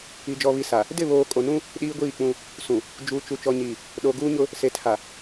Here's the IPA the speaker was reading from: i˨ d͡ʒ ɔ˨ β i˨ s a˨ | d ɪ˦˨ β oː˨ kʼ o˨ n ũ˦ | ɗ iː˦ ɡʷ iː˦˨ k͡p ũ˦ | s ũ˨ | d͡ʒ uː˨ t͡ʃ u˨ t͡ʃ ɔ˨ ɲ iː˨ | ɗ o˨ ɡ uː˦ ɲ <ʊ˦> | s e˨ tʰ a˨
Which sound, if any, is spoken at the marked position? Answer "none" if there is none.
ʊ˦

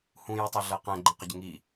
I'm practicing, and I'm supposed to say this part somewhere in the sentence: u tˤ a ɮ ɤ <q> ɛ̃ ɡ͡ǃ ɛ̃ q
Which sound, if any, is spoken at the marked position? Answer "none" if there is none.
q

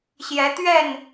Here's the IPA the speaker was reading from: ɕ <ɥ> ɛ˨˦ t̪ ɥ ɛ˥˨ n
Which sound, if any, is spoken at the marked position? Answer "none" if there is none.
j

